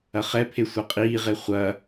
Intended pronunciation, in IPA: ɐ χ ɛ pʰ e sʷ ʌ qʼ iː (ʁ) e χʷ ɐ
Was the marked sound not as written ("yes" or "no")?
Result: no